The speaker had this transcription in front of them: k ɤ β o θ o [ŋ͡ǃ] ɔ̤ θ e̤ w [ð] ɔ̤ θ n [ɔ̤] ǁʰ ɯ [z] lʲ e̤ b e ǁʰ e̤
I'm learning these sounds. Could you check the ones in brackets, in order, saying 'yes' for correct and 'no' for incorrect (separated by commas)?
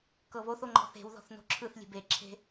yes, yes, no, no